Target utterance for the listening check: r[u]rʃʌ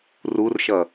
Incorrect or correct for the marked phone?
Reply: correct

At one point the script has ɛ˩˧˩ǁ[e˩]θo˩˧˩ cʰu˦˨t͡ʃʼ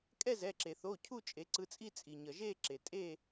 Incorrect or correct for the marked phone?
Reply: correct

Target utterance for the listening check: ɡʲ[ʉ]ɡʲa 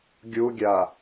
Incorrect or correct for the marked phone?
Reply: incorrect: u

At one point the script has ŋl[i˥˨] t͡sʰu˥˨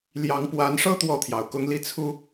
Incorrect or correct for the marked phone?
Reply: correct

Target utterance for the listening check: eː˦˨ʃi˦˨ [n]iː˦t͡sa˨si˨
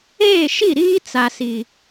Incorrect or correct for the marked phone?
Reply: incorrect: ɾ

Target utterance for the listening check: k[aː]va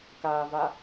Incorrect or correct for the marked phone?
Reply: correct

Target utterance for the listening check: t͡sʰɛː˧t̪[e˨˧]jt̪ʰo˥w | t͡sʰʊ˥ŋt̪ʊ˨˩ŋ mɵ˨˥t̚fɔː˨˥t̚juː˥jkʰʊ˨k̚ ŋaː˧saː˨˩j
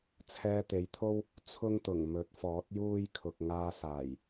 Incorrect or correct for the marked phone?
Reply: correct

